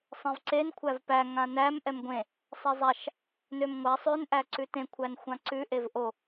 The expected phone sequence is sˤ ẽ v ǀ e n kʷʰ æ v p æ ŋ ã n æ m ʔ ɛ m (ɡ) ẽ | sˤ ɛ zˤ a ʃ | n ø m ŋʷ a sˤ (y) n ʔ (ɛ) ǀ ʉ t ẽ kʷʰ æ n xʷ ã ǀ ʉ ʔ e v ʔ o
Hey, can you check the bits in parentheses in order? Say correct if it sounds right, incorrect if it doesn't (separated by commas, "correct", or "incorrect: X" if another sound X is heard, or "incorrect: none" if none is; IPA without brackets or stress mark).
incorrect: ɡʷ, incorrect: ø, incorrect: æ